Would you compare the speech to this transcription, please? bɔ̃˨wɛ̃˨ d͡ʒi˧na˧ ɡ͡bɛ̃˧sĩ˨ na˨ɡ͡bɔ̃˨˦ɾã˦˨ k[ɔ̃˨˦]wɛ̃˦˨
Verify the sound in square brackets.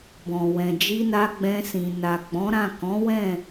correct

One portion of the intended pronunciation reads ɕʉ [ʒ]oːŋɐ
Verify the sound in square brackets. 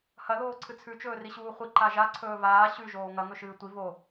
correct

